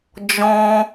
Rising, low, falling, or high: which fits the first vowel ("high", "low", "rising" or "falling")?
high